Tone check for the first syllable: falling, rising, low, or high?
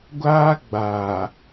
high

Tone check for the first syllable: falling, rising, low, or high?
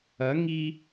rising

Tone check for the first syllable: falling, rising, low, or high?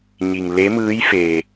low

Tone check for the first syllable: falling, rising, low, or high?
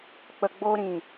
low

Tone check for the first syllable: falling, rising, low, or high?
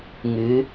rising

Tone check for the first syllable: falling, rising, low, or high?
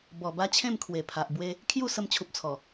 low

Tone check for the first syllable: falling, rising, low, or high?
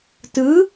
rising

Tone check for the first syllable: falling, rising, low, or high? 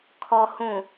low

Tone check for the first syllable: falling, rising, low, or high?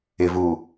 low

